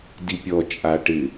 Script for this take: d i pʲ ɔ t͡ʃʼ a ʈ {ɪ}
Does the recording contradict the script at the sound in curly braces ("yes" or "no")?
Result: no